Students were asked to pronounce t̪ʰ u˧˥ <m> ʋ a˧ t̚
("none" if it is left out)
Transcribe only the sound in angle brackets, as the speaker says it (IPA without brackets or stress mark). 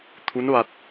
n